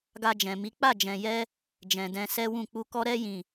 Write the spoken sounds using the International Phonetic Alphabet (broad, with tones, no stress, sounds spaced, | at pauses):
ɡ a˧ d͡ʒ ɛ̃˨ m i˨˦ k͡p a˦˨ d͡ʒ ɛ̃˨ j ɛ˧ | d͡ʒ ɛ̃˨ d ɛ̃˧ s ɛ˦ w ũ˦˨ k͡p u˧ k ɔ˦ ɾ ɛ˦ j ĩ˦˨